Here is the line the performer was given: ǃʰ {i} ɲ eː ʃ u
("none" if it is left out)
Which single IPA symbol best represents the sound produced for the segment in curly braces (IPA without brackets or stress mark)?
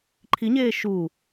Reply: i